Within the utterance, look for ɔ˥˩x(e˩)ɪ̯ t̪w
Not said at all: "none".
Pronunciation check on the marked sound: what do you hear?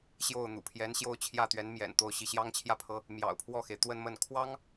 e˩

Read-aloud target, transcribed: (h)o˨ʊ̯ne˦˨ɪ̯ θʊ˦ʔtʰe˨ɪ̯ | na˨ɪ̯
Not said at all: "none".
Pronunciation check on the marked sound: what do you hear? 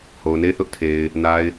h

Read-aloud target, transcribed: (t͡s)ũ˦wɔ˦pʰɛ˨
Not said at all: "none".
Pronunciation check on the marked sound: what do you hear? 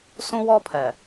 s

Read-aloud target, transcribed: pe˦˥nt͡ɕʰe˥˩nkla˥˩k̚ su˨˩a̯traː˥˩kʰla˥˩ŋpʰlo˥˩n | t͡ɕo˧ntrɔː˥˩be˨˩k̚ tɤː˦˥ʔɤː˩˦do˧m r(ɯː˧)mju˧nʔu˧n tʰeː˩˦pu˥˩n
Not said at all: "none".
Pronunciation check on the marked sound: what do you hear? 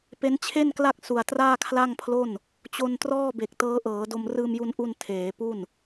ɯː˧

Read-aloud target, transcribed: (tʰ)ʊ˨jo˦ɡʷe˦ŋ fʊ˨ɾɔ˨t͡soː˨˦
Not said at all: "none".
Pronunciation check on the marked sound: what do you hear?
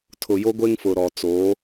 tʰ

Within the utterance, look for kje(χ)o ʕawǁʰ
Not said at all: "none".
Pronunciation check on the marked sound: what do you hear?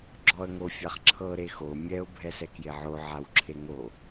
ʕ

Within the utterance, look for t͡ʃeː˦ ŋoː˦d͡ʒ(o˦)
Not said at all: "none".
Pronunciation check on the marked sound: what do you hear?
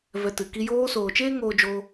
o˦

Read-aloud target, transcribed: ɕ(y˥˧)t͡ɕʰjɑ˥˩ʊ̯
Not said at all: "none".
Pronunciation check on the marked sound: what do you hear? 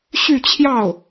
y˥˧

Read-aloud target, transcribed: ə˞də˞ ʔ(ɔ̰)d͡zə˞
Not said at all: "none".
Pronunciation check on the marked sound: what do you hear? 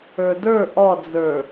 ɔ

